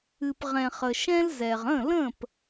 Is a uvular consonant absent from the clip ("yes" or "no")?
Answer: no